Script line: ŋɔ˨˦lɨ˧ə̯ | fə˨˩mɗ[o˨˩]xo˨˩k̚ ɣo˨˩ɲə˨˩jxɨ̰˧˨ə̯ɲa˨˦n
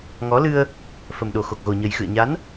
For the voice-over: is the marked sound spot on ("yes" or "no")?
yes